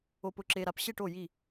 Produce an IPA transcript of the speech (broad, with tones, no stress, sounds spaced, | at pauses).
o˨ p ʊ˨ ǁ e˨ ɾ a˨ p ɕ e˦˨ ʈ o˦˨ j i˦˨